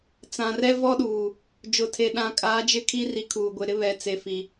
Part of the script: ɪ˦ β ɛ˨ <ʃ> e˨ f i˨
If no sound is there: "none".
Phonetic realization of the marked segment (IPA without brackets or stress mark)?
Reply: t͡s